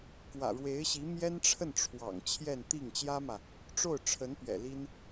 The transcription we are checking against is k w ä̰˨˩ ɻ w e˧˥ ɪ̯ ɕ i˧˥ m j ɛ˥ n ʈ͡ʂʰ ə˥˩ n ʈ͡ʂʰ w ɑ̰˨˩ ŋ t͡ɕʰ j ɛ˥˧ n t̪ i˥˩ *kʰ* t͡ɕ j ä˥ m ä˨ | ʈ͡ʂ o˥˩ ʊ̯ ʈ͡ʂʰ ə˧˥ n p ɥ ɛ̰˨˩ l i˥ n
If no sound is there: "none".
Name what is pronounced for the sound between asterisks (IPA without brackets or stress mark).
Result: ŋ